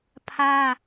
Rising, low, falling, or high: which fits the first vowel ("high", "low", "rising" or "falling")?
high